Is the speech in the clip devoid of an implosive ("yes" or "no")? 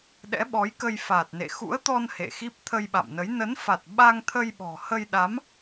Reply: no